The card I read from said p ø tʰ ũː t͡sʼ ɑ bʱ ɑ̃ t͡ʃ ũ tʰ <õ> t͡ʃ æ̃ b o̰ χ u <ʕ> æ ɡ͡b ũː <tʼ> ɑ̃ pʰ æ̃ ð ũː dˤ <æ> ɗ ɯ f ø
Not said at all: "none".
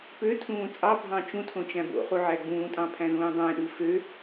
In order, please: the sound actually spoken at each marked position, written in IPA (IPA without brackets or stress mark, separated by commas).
õ, ʕ, tʼ, æ̃